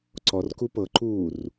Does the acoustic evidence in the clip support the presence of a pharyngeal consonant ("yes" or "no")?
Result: no